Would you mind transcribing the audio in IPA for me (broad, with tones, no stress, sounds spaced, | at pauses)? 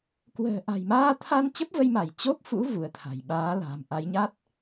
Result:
k w ə̤ː˨˩ ʔ a̤˨˩ j m aː˧ t̪ʰ a˧ n t͡ɕ ə˦˥ p̚ v ə˧ j m a˧˩ j t͡ɕ o˦˥ p̚ f ṵ˧˥ v u˨˦ ə̯ t̪ʰ a̤˨˩ j ɓ aː˨˦ l a̤˨˩ m ʔ a˨˦ j ɲ a˦˥ t̚